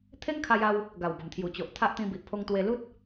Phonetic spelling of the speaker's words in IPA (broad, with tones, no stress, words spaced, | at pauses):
t̪ʰe˦ŋkʰa˧ja˧w | ɡa˨˩wbə˨˩mt̪ʰju˨˩t͡ɕo˨ʔ t̪ʰa˦ʔt̪ĩ˧bi˨ʔ pʰo˧ŋt̪we˧lu˦t̚